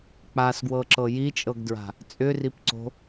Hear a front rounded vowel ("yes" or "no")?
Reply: yes